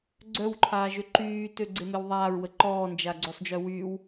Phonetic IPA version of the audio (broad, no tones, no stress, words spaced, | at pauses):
ɡ͡ǀœwǃʰaː ʒøǃyː tøɡ͡ǀemewðˤaːɹ wəǃɔːnd͡ʒa ɡ͡ǀøsˤd͡ʒœwyːw